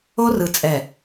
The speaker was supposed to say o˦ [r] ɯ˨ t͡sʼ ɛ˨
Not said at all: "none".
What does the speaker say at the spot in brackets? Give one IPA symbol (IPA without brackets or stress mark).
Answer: r